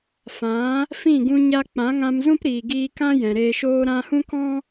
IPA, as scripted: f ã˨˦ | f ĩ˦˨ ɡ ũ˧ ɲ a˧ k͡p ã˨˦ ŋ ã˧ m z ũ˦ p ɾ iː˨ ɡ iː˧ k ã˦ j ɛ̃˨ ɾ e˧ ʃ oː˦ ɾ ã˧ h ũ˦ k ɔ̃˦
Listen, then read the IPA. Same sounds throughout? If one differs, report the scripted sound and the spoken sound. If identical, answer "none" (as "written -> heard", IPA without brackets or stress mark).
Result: none